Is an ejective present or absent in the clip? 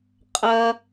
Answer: present